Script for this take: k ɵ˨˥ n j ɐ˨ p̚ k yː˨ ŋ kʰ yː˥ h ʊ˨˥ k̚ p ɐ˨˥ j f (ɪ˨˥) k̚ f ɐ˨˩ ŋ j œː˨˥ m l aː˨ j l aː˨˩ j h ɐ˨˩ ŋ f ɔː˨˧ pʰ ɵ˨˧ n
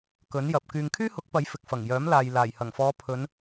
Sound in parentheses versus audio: incorrect: ɪ˨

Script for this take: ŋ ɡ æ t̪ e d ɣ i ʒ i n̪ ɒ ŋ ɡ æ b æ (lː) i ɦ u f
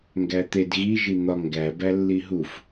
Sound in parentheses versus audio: correct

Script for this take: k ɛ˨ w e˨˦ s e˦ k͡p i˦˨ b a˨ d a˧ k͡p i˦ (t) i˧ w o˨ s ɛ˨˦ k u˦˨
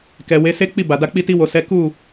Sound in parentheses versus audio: correct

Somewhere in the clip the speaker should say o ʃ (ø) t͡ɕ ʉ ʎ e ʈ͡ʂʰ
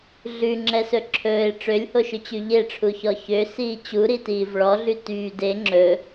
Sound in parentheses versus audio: correct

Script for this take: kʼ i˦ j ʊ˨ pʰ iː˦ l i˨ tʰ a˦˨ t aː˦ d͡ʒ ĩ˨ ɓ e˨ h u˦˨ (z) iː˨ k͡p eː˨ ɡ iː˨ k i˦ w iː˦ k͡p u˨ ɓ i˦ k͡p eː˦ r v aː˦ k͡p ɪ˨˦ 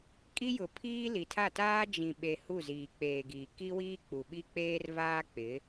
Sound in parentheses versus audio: correct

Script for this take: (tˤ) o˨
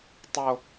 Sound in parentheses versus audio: correct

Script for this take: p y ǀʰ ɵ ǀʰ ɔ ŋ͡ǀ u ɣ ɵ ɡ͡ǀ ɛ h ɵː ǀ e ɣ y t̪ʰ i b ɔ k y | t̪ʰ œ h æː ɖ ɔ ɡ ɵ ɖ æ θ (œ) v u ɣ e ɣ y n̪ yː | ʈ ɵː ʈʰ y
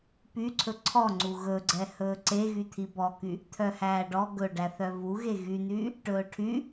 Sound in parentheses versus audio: correct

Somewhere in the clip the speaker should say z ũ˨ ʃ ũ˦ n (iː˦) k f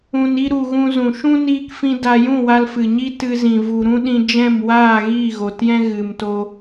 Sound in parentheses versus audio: correct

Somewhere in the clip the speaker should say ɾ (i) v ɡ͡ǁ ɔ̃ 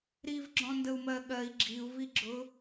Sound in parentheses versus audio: correct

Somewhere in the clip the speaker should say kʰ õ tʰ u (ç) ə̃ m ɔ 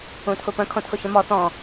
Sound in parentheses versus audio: correct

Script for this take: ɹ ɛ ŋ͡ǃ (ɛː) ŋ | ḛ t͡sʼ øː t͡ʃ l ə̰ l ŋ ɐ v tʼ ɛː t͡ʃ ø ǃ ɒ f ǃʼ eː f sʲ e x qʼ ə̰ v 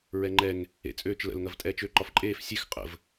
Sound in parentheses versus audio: incorrect: ɛ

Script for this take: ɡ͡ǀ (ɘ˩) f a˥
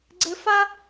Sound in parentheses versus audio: incorrect: ɘ˧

